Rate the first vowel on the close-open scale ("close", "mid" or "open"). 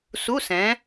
close